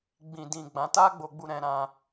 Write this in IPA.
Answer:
ɡ͡bĩ˨dĩ˨ ɡ͡bã˨˦ta˦ɡ͡bo˧ɡ͡bu˧ ɾɛ̃˧ɾã˧

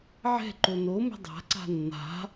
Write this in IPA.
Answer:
ʕɛ̤ǃo nomɛ̤ dˤa̤ǀa̤ nːa̤

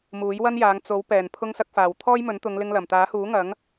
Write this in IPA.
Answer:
muː˨˥jwɐ˥njaː˨˧ŋ t͡so˨˥w pɛː˨˩n pʰʊ˧ŋsɐ˧k̚faː˨˩w t̪ʰɔː˥jmɵ˨˥nt̪ʊ˨˧ŋlɪ˧ŋ lɐ˨˩mt̪aː˨˥huː˨˥ ŋɐ˨˥ŋ

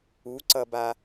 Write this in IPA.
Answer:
uǀʌba

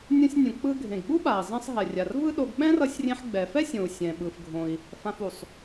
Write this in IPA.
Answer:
nʲũ˧sʲnʲũ˩ k͡pɯ˧ɡʱẽ˩ɡɓu˥ɓa˩i̯ zˤɛ̃˧sˤ ɦɛ˩rʲa˩r vɯ˥ɗo˧ɡ ɓɛ̃˥rʌ˧sʲrʲẽ˧ħ ɡ͡bɛ˩fɛ˥sʲõ˩u̯ sʲɛ̃˩ɓɯ˩fɡʱõ˩i̯ | fã˧fu˩sˤ

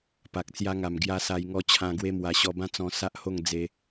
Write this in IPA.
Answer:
pa˨k̚t͡sja˧ŋa˨˩m ɡja˧ sa˧jŋɔ˧ t͡ɕʰã˧ɡwe˦mwa˧ ɕɔ˧bã˥˧t͡sɔ̃˧ sa˦ʔho˥˧ŋ d͡ze˧

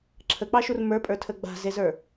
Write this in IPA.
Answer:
ǁʰək͡pɑʃur mə˞pʼə˞tʰə ɡ͡ba̤zezə˞

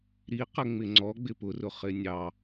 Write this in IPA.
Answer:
ɾi qəŋ͡mɪŋ͡ǀɔ ɡ͡bɪpʊrʊ χɪnʲɑ

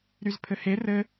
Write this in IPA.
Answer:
ɾyzpʰɘhe rɘ

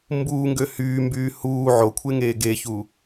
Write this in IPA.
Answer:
mbuːŋɡø hyːmbyː huː ʕokʷʰeŋeː ɡeçu

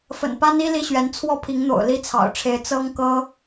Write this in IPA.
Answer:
fə̰˨˩npa˥ni˥ li˥ɕɥɛ˧˥n t͡sʰwɔ˥˩pʰi˧˥ŋn̪o̰˨˩ʊ̯ li˥t͡sʰɑ̰˨˩ʊ̯ʈ͡ʂʰe˧˥ɪ̯ t͡sɤ˥ŋkɤ˥

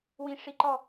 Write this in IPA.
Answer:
wĩʂiǃɔ

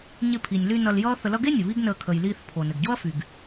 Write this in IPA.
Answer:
ɲɪ˧pʰi˩nʲly˧ nʌ˧ljʌː˥θə˧lʌ˥ ɡe˥nʲɘ˩ βi˥ɡnəː˧ kʰə˩jliː˧θ pʰo˩ nɘ˩ɡɟo˥ɐ̯fy˩ɡ

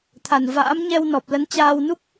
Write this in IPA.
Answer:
t̪ʰa˨˩nva̰ː˧˥m ɲɛ˧w nɔ˨˩p̚lə˨˦n t͡ɕaː˧wnu˦˥k̚

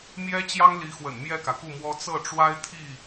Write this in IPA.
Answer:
mjɛ˥ t͡ɕjɑ˥ŋli˧˥xwə̰˨˩n mjɛ˥˩kä˩ku˥˩mwɔ˥ t͡sɤ˥˩ʈ͡ʂwa˥ɪ̯ t̪ʰi˥˩

